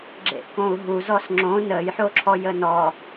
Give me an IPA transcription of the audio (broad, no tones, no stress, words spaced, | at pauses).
ɡ͡ǁḛʔkõu̯ɦu zɔsŋ͡ǁõ nəjħo ǁʰɔjənɔ